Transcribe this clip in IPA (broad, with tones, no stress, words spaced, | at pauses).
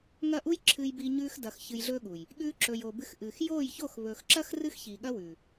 ŋɐ˦˨ʔu˦jǁʰɨː˧jbiː˧ ɲʉː˧x dɐ˨x çɨ˧jɮɵː˦ɠu˨j | ɠʉː˧ǁɵ˨j o˨bɨ˧x ʔɨː˨x joː˦˨jço˦˨x βɵː˨xǁɐ˦x rɨ˦xçiː˨ɠɐ˦wʉː˨